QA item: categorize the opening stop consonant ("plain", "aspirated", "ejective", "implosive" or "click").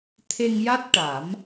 aspirated